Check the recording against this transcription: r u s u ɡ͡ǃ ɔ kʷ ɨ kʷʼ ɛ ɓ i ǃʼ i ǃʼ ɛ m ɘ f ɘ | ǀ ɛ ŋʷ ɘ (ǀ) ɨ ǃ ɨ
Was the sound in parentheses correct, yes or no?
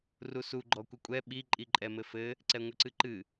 yes